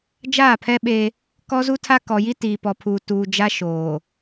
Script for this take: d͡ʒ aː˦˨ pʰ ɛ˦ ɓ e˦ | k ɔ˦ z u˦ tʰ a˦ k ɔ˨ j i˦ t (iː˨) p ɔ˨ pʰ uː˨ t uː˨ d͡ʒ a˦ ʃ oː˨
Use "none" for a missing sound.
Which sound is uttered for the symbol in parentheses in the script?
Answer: iː˨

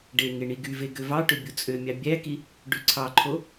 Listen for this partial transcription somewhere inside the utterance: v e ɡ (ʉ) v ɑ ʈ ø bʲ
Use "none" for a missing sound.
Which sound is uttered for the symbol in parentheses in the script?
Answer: ø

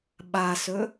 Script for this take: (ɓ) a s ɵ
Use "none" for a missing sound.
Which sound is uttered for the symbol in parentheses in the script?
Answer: ɓ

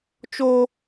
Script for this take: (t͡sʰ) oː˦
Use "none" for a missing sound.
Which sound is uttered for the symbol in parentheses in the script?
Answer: t͡ʃ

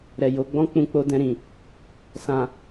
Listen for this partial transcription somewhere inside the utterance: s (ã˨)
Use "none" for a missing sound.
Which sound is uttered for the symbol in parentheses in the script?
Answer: ã˨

